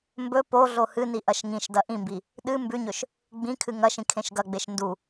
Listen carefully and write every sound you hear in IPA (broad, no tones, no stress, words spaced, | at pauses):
mbɵ po ɮohɨni ʔɐʃŋĩʃdɐ ʔĩmbi | ɗɨ mbʉɲɵʃ | ɡ͡bĩkʰɨ ŋɐʃĩ kʰẽʃɡɐɡ͡beʃ ndu